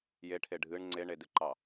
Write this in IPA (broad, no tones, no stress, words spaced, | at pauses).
jeʈʰe ɖʱɨɳ ŋ͡ǀeɳedɨǃɑ